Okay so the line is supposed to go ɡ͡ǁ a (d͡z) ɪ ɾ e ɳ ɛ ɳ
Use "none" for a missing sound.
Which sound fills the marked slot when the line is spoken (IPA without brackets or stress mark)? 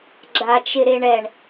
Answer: t͡ʃ